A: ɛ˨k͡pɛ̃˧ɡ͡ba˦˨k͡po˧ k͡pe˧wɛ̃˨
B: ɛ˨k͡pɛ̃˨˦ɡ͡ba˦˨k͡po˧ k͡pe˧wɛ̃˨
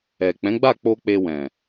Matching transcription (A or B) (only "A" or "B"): B